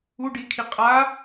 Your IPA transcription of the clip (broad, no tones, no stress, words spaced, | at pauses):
u ɖikʰi qʼa